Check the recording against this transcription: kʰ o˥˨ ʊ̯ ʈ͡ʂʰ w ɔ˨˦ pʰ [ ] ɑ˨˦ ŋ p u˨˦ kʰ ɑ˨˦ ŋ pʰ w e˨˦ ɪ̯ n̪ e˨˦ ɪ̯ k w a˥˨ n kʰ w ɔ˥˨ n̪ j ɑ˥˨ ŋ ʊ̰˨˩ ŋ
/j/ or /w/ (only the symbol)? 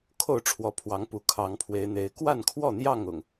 w